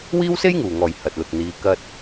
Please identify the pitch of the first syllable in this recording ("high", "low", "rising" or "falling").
high